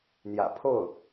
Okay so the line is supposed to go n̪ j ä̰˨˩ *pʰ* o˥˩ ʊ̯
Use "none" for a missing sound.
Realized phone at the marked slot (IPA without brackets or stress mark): pʰ